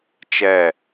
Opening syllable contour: falling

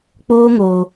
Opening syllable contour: high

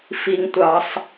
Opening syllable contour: low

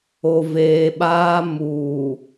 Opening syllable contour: low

